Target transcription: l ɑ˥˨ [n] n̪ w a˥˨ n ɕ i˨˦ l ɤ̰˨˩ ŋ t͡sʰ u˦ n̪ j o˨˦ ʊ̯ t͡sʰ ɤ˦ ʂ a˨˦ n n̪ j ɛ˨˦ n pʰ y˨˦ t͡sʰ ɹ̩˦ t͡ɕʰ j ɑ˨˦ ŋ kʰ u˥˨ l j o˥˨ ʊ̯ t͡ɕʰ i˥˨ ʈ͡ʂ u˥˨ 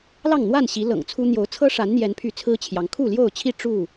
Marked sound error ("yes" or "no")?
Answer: yes